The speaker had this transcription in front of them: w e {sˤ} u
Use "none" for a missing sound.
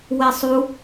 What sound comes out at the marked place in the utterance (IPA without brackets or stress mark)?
sˤ